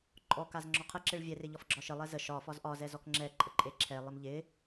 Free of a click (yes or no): no